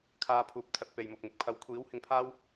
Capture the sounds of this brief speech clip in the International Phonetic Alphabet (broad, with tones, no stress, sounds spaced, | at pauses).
kʰ aː˧ pʰ uː˨ p̚ t̪ʰ ɐ˨˥ t̚ p e˨ j m ʊ˨ k̚ m ɪ˨ k̚ pʰ ɐ˨˥ w kʷʰ iː˨˥ w h ɪ˧ ŋ pʰ aː˥ w